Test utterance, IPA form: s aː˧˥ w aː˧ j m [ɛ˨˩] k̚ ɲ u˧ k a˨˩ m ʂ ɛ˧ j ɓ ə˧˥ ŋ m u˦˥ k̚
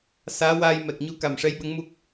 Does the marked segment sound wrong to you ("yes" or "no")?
no